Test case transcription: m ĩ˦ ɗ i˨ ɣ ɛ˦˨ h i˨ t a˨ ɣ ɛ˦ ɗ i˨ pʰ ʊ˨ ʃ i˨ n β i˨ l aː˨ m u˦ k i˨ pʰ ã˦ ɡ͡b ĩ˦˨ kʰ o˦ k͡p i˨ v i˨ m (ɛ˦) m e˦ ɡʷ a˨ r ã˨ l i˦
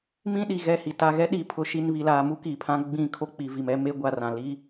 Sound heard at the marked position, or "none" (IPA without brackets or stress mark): ɛ˦